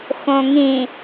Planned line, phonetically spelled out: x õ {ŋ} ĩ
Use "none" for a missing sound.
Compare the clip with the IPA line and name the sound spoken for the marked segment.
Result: ŋ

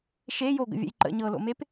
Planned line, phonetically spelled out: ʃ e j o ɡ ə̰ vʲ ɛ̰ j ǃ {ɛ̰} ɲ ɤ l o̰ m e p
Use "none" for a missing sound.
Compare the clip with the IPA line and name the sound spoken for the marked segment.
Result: ə̰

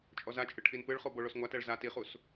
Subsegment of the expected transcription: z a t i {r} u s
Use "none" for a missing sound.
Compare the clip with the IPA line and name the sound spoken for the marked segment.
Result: χ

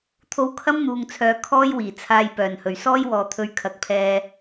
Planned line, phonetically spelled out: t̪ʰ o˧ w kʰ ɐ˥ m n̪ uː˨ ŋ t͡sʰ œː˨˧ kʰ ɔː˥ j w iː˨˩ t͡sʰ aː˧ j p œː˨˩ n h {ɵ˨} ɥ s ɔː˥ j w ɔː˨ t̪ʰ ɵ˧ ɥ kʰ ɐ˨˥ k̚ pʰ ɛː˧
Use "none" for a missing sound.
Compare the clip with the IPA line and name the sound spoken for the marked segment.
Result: ɵ˨˩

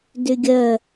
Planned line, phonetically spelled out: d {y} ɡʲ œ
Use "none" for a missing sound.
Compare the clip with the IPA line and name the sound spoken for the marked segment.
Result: y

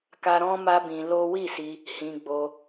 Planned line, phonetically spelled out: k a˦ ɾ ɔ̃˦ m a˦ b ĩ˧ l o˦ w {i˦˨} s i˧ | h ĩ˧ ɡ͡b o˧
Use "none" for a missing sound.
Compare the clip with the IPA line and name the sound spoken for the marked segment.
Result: i˦˨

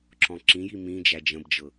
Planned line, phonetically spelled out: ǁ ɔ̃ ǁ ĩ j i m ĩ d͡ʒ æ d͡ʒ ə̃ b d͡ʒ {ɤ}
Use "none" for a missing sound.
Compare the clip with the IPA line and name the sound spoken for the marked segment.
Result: ɤ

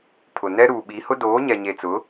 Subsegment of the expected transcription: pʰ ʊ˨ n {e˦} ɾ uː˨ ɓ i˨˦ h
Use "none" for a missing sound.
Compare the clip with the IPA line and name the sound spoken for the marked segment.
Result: ɛ˦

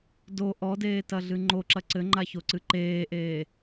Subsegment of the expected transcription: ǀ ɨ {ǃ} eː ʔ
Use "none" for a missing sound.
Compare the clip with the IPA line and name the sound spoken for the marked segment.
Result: ǃ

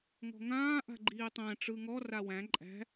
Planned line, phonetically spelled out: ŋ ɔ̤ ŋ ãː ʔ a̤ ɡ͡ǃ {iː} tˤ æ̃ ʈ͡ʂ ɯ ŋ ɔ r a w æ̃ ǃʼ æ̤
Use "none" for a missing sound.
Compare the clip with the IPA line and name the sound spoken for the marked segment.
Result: iː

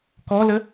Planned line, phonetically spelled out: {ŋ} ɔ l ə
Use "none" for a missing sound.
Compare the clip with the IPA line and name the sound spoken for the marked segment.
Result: k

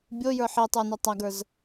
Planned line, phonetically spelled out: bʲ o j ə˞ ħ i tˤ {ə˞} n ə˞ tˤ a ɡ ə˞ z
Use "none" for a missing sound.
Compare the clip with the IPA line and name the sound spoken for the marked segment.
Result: ə˞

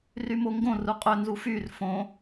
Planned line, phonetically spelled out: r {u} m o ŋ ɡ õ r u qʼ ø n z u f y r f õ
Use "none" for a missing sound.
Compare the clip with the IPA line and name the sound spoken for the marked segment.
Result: y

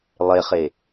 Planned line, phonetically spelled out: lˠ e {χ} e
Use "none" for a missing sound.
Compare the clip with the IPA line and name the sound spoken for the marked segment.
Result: χ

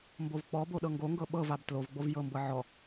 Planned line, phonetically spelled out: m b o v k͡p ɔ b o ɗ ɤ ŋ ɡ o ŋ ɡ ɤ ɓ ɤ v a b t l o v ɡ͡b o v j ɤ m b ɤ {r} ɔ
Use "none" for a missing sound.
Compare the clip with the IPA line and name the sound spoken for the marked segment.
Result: ʕ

